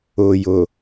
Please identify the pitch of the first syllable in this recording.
low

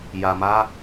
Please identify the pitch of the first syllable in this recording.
low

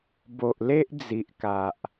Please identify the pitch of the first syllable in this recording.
low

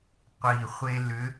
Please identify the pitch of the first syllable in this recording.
low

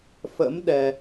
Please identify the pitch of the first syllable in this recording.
rising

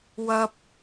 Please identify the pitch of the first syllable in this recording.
high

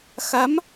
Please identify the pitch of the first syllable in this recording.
rising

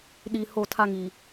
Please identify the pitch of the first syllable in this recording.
low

